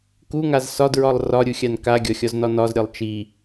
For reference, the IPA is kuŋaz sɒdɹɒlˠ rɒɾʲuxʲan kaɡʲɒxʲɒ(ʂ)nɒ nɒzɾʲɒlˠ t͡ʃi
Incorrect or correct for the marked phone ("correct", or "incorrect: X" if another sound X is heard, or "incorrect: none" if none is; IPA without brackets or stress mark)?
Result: incorrect: z